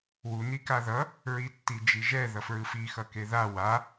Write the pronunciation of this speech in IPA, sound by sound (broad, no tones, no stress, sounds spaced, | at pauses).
w u n i k a ð ʌ | ɹ i tː i d͡ʒ i ʒ ɛ ð ʌ f ɹ ɯ f i x ʌ k e ð a w a